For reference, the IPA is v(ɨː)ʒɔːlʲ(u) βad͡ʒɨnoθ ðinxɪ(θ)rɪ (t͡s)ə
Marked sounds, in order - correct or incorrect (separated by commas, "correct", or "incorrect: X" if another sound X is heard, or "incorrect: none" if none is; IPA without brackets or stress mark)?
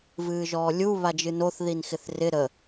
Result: correct, correct, correct, incorrect: ɾ